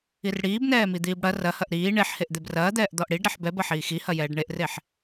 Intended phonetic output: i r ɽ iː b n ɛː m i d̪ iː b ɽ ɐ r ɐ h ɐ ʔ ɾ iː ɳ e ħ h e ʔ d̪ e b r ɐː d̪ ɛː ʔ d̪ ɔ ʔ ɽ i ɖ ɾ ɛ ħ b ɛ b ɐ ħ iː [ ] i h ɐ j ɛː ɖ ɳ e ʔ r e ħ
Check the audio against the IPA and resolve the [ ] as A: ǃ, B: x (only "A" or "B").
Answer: B